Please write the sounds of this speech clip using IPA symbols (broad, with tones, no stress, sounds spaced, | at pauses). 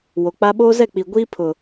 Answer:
w o˨ k͡p a˦ ɓ oː˦ z ɛ˦˨ k͡p i˨ ɡʷ iː˦ pʰ ʊ˨